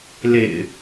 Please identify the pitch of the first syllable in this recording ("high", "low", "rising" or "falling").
low